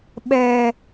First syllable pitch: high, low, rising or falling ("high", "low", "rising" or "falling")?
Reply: low